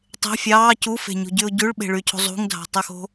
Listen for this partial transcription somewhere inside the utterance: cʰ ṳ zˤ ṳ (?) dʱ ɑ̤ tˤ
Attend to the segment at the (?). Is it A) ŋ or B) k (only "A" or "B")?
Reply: A